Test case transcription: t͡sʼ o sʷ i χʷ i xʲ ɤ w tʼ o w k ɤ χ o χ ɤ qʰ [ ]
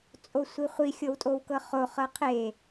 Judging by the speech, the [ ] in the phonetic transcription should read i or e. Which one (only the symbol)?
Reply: e